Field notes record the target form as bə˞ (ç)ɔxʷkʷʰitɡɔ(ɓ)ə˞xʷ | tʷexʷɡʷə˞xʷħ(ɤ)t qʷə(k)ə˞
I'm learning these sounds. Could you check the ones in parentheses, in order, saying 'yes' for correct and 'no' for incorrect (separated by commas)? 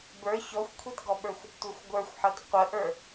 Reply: yes, yes, yes, no